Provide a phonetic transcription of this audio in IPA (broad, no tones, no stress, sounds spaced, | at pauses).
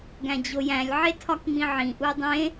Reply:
ɡ æ̃ d͡ʑ o j æ̃ lʲ ʕ e tʰ ɒ k ŋ͡m ĩ ʕ ĩ ʔ u dˤ ẽ